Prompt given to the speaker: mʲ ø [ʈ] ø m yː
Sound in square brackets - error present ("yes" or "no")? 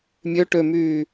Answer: no